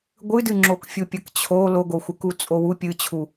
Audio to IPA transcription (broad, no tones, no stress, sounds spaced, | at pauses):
ɡʷ ɨ d ɨ ŋ͡ǁ o k fʲ u pʲ ɐ k t͡ɕʰ o l o ɡ o xʷ ɨ k u t͡sʼ o w u pʲ ɨ t͡ɕʰ u